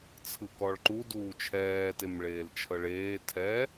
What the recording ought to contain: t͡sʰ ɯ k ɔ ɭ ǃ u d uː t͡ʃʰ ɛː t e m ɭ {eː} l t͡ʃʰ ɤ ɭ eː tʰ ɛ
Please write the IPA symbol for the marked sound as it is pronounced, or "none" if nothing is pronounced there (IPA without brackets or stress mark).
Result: eː